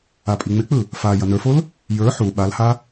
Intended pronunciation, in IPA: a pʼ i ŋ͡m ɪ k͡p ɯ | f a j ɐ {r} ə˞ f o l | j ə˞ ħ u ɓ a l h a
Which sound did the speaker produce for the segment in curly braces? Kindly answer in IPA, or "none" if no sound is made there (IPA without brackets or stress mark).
n